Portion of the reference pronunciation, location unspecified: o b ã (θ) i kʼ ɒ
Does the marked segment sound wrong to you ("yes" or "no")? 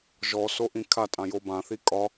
no